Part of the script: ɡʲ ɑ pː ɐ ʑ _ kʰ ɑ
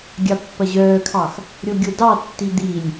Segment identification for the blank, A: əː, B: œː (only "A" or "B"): B